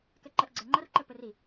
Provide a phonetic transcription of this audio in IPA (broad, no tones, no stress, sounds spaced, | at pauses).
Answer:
k ɛ ǃ ɛ ʔ ɡ͡ǀ ɛ ŋ͡ǃ ɐ r ǃ ɘ p ɘ r i